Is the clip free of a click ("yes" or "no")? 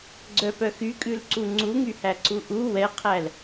no